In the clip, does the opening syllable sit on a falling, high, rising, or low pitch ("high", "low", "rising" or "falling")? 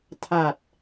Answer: low